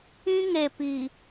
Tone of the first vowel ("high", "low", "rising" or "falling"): high